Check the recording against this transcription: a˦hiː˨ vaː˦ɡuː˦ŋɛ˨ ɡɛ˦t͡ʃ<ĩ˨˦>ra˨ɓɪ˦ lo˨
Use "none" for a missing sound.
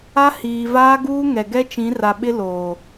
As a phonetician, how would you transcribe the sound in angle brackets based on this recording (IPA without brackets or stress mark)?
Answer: ĩ˨˦